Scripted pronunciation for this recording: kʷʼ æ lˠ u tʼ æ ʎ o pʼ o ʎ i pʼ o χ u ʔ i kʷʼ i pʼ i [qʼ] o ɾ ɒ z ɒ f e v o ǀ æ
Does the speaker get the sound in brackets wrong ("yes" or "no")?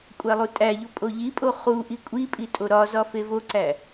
yes